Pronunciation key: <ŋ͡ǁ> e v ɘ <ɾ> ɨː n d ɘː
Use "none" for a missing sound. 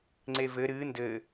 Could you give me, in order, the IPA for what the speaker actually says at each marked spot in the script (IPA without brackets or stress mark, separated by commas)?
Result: ŋ͡ǀ, ɾ